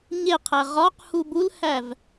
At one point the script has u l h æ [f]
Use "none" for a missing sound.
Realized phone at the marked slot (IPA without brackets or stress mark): v